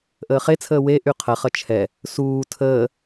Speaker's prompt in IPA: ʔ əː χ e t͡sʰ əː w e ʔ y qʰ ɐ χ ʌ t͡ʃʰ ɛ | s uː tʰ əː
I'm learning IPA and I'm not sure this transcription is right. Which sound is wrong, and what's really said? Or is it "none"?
none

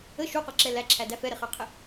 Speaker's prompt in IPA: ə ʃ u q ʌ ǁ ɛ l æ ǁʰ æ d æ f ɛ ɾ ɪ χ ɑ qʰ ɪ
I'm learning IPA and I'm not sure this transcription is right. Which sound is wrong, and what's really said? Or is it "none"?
none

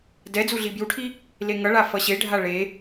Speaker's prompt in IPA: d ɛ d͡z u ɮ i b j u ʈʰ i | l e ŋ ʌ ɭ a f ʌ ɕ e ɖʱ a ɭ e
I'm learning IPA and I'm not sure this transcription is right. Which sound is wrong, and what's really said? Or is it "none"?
none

